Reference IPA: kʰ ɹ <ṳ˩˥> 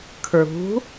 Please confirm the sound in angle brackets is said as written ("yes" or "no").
yes